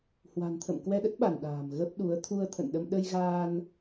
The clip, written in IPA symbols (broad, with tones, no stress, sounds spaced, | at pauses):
h w a̤˨˩ n t̪ʰ ə̰˧˨ m k w ɛ˧ ɗ ə˦˥ t̚ ɓ a˧˩ n ɗ a̤ː˨˩ m ɣ ə˦˥ p̚ ɗ u˨˦ ə̯ t̪ʰ u˧ ə̯ t̪ʰ ə̰˧˨ n ɗ ə˧ m ɗ ə˧ j ɣ aː˧ n